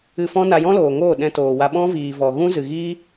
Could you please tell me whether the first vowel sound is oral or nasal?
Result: oral